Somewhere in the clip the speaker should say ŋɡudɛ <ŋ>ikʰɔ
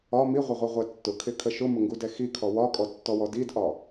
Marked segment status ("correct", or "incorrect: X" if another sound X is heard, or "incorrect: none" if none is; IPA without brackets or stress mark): incorrect: x